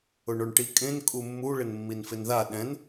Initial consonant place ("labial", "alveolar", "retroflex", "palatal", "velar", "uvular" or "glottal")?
retroflex